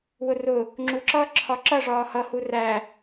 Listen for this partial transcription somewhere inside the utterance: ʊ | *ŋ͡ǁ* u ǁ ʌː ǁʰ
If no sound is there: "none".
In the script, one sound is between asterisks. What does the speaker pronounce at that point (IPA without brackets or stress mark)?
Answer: ŋ͡ǁ